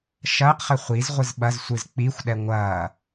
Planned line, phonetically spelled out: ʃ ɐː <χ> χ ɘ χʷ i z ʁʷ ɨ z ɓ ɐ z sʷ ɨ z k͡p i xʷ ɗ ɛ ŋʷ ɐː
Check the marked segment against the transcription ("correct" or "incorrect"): incorrect